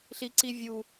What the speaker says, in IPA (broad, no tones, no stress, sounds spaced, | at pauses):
ɬ i ǀ i vʲ u